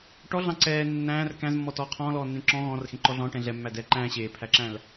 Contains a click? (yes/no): yes